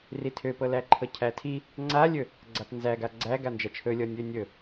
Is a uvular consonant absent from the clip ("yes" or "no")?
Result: yes